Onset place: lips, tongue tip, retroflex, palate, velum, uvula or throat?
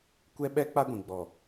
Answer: velum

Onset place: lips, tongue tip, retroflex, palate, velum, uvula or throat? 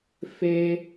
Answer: lips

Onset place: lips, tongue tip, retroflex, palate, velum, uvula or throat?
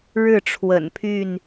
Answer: retroflex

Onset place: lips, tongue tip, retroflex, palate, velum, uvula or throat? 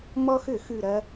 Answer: lips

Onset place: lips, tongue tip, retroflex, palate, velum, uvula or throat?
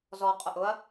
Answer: tongue tip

